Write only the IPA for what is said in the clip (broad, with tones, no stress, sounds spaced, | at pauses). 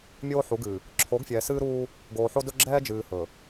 mʲ oː˦ ħ u˨˦ ɡ ɨ˨ | ǁʰ o˨˦ ɡ fʲ ɛː˨ s ɨː˦ ɾ uː˦ | ɡ oː˨ ħ o˦ d ɵ˦ ɡ͡ǁ ɛː˦ d͡ʒ ɨː˨ h ɵ˨